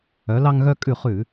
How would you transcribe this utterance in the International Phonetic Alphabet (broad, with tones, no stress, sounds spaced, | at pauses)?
œ˩˧ l ɑ˧ ŋ ɣ œ˧ kʼ ʉ˧˩ χ ʉ˧˩˧